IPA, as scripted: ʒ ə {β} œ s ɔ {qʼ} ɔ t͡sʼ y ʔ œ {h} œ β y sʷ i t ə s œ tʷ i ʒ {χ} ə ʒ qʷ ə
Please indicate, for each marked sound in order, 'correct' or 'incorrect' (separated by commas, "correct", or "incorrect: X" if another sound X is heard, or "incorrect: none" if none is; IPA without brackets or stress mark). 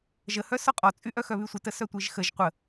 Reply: incorrect: h, correct, incorrect: x, incorrect: x